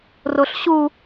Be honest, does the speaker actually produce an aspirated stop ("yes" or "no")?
no